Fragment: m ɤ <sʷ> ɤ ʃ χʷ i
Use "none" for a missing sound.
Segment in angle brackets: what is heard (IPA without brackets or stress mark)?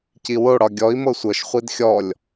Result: sʷ